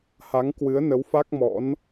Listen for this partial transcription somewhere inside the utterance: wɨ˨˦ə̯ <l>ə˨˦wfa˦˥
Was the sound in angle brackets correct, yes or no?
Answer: no